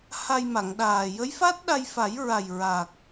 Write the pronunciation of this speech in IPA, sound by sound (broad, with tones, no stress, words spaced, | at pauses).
ha˧jma˨˩˨ŋɗaː˨˩ jə˧˥jfa˦˥t̚ɗa˧jfa˨˩˦j ɹa˨˩jɹa˨˩k̚